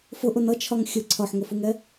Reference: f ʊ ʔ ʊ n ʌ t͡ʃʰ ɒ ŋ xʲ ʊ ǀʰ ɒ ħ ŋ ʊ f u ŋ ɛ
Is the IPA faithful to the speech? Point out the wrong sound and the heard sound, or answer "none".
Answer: none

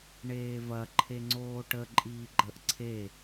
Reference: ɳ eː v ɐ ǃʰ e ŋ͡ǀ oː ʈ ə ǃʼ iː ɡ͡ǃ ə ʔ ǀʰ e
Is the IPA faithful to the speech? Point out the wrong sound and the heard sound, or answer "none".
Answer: none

